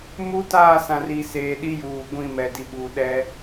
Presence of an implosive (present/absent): present